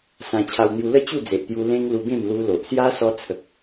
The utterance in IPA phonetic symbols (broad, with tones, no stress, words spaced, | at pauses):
sã˧ t͡ɕʰa˧wn̪ju˧lə˥˧ t͡ɕu˥˧ d͡ze˨ʔt̪ju˧ lẽ˦ŋ lu˧ɡẽ˥˧m lu˧lo˨ʔ sja˦sɔ˧t͡sʰə˨k̚